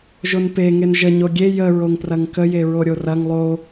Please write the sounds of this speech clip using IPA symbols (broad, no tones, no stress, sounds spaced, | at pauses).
ʒ o n p e ŋ e n ʒ ə ɲ o ɡʲ e j ə ɹ o ŋ p r ɐ ŋ k ə j e ɹ o ɾʲ o r ɐ ŋ lˠ o